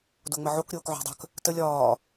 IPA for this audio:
d o ŋ͡m ə ʕ o k ɾʲ oː k ʕ o̤ dˤ ə̤ k | t ə lʲ ɒː

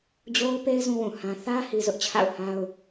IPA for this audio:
d͡ʑ o˦ ʊ̯ p e˦ ɪ̯ z ũ˦ w ũ˨ h ã˦ θ ä˦ h i˦ z ʊ˦ ʔ t͡ɕʰ a̰˦˨ ʊ̯ h a˦ ʊ̯

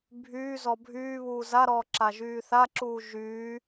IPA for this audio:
bʱ yː z ɔ bʱ yː β uː z a ɾ ɔː ǁ a ʒ yː θ a ǁ uː ʒ yː

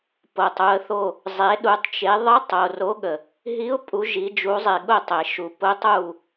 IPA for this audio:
p o˩ tˤ u˩˧ ə̯ θ o˧˩ | zˤ e˩˧ ɗ u˩˧ tˤ t͡ʃ e˩˧ ðˤ ə˧˥ tˤ o˩ r o˧˥ ɠ ə˩ | ɦ i˧˥ ʊ̯ pʼ u˩˧ ʒ i˩˧ d͡ʒ u˩˧ zˤ e˩ ɠ ʊ˧˩ tˤ e˩ ʃ u˩ p ʊ˧˥ tˤ u˧˩

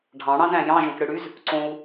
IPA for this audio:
ɖʱ ɑ̃ ɽ ɑ̃ z æ̃ j ɑ̃ ʒ õ k ɽ ɯ ɽ y z | ǀ õ u̯

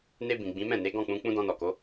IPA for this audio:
n e˧ b ĩ˨ ɡ͡b ĩ˨˦ m ɛ̃˦˨ n e˨˦ ɡ ɔ̃˦˨ k͡p ũ˧ k͡p ũ˦ d ɔ̃˧ n ɔ˨ k o˨˦

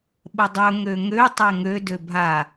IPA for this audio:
ɓ ə dˤ ɵ ŋ ø ŋ ø tˤ ɛ ŋ ø d ø bʱ a

